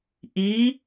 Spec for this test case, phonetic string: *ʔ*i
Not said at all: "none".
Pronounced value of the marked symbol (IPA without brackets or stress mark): ʔ